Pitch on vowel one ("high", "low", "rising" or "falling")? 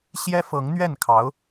high